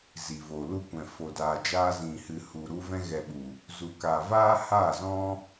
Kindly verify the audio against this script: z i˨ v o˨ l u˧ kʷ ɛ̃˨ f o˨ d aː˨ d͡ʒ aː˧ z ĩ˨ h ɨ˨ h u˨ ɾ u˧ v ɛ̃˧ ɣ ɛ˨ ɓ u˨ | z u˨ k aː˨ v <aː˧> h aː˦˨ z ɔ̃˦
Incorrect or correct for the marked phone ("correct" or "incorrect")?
incorrect